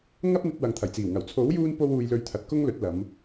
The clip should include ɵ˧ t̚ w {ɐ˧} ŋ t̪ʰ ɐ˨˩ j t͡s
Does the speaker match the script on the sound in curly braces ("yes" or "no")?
no